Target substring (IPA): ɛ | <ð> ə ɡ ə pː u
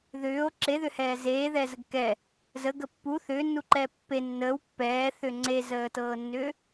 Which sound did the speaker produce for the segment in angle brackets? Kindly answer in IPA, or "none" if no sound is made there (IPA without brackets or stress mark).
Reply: z